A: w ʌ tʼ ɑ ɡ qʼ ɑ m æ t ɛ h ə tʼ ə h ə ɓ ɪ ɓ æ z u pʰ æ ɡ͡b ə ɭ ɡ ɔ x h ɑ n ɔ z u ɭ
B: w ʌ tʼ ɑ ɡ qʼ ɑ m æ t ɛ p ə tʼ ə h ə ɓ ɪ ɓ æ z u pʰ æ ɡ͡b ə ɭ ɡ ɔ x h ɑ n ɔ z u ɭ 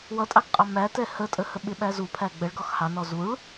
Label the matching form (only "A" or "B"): A